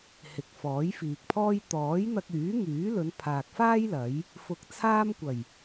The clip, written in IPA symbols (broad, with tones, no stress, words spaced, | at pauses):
hɪ˨k̚fɔː˨˥jfiː˨k̚pʰɔː˥j t̪ɔː˨˥jn̪ɐ˧k̚yː˨˥ŋyː˨˥ lɵ˨˧npʰaː˨k̚faː˥j lɐ˨˥j | fʊ˧k̚t͡sʰaː˥m kʷɐ˨˩j